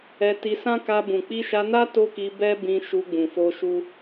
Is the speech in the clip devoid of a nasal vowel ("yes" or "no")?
no